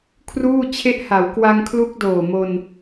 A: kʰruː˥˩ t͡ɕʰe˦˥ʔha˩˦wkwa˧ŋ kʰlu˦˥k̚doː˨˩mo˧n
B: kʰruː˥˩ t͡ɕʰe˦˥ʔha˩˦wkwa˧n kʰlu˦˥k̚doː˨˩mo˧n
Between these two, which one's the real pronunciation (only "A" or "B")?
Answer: A